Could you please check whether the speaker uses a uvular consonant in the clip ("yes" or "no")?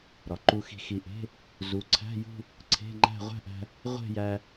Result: yes